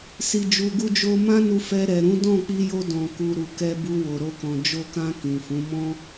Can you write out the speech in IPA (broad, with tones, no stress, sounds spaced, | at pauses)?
s i˨ d͡ʒ u˨ ɡ u˧ d͡ʒ o˧ m ã˦ n u˧ f ɛ˧ ɾ ɛ˨ ɾ ũ˨˦ d ɔ̃˦˨ k͡p i˧ j o˧ d ɔ̃˨ k u˨ ɾ u˨ k ɛ˧ b u˧ w o˨ ɾ o˧ k ɔ̃˨ d͡ʒ o˧ k ã˧ k ĩ˨ f ũ˨˦ m ɔ̃˦